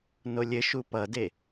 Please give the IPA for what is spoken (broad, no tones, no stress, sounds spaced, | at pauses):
n o lʲ ɘ ʃ u p ʌ d e